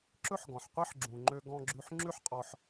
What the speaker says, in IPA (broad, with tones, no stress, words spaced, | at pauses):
ǁɵ˥ħɡɔ̃˩ħ qʷe˥ħ ɡ͡ǁũ˩ŋ͡ǃø˧ ɡɔ̃˧ɡ͡ǁʉ˧ħ ŋ͡ǁʉ˥ħqʼɔ˧ħ